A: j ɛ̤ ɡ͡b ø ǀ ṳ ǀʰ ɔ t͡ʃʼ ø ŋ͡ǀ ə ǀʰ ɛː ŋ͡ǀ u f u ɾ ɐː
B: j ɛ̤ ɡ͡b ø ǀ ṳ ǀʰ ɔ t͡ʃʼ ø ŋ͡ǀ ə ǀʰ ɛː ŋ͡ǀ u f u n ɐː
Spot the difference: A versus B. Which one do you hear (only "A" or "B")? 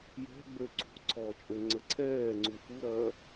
A